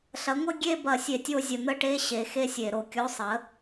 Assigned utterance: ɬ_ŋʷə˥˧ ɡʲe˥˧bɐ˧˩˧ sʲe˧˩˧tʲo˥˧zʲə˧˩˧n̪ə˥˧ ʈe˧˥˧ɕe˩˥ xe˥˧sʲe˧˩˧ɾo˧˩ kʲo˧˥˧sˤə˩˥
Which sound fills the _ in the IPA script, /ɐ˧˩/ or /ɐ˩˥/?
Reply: ɐ˩˥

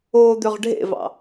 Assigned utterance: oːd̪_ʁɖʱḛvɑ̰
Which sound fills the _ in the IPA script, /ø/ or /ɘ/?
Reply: ø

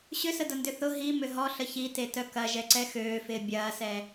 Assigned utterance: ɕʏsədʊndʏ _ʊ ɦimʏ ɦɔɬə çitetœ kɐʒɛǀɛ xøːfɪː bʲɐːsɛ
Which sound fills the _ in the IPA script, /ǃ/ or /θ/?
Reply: θ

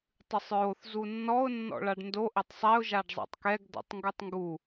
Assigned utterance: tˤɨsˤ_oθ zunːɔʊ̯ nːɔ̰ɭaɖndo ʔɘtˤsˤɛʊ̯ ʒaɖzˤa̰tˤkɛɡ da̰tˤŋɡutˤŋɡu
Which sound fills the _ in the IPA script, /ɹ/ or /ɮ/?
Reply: ɹ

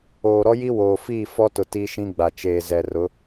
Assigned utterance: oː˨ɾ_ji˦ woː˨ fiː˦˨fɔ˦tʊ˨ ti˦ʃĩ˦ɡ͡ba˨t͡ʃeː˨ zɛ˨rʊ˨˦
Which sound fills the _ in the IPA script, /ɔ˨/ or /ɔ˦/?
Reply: ɔ˦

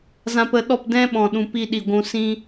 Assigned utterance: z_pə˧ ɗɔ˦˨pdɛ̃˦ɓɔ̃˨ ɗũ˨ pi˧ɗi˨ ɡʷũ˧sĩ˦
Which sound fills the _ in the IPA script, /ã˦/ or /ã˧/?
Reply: ã˧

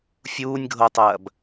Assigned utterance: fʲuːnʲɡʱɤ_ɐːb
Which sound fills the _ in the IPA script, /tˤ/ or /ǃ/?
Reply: tˤ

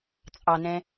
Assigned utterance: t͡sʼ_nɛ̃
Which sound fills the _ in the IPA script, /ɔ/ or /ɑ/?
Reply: ɑ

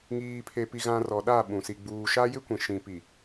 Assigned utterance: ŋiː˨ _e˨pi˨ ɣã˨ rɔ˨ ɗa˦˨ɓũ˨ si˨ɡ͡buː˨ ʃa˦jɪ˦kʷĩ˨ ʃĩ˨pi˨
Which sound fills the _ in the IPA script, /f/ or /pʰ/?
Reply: pʰ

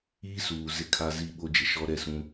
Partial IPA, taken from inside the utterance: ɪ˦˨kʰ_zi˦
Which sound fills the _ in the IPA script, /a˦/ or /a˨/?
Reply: a˦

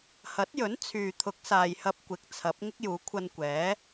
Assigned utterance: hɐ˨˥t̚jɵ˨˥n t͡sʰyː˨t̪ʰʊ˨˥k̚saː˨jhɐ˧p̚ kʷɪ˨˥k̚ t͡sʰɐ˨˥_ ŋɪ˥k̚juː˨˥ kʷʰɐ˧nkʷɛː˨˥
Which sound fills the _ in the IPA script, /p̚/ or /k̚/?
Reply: p̚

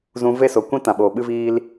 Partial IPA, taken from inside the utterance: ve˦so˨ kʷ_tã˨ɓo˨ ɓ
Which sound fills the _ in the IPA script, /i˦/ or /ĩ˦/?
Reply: ĩ˦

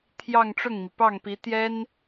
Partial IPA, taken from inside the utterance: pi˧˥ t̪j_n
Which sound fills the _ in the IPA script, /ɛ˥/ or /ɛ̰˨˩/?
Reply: ɛ˥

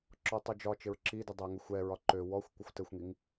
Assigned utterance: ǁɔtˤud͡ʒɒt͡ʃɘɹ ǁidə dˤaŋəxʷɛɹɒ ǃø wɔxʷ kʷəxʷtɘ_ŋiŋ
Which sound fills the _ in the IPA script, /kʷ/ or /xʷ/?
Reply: xʷ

